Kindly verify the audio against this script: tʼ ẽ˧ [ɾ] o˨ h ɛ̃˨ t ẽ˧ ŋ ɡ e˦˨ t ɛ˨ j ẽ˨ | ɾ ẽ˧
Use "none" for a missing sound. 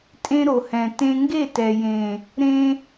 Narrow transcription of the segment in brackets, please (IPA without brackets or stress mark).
ɾ